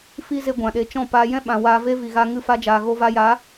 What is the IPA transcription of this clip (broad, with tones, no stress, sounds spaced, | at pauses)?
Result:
f i˦ z e˧ ɡʷ ã˨ ɗ e˨ t͡ʃ ɔ̃˦˨ p aː˧ j ɛ̃˦ ɓ ã˨ w aː˧ v e˦ v i˨ ɣ a˧ ŋ ɨ˦˨ f a˦ d͡ʒ aː˨ ɣ o˧ v a˧ j a˨˦